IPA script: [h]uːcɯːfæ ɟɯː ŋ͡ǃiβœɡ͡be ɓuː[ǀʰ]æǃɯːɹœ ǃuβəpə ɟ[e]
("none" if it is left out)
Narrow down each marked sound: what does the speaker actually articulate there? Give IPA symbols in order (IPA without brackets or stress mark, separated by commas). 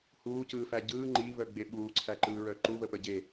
h, ǀʰ, e